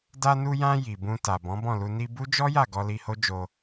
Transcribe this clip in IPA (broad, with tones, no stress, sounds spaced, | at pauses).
d a˧ n u˧ j ã˧ j i˨ b ũ˧ t a˨ b ɔ̃˨˦ b ɔ̃˦˨ l u˧ n i˧ b u˦ d͡ʒ ɔ˦ j a˦˨ ɡ ɔ˧ l i˧ h o˦ d͡ʒ o˧